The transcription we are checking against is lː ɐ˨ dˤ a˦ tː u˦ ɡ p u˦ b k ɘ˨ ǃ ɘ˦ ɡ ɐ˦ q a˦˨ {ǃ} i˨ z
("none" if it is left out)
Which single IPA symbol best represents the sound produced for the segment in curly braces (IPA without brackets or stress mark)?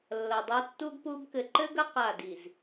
d